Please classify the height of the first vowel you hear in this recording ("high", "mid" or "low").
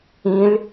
high